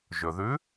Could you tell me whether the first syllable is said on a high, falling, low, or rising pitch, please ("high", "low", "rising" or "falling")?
low